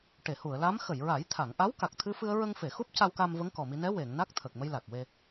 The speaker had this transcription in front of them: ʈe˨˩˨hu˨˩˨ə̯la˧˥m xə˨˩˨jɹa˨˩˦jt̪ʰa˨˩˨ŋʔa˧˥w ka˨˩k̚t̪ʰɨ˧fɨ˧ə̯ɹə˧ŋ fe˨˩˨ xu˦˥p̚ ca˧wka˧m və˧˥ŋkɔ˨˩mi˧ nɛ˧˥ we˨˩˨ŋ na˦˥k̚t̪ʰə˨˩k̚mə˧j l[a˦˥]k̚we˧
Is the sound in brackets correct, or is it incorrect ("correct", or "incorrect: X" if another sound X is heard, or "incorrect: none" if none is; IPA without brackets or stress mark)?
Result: incorrect: a˨˩